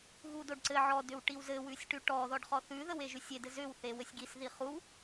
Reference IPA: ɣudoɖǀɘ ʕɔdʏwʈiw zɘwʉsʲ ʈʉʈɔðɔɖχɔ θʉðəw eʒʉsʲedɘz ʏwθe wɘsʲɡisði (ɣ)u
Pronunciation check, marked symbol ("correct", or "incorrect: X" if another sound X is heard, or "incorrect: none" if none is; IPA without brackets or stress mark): incorrect: χ